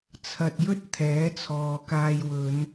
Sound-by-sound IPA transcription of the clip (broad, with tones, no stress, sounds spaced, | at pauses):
t͡sʰ ɐ˨ t̚ j ɵ˥ t̚ t̪ʰ ɛː˨˥ t͡sʰ ɔː˨ k aː˧ j w ɵ˨˧ n